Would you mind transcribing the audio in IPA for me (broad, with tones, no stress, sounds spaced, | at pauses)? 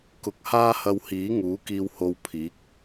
k ʊ˧ k̚ h aː˥ h ɐ˧ w h iː˨˥ ŋ uː˨˥ k iː˧ w h o˧ w pʰ iː˨˥ k̚